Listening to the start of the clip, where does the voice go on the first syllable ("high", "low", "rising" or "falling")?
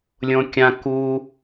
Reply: high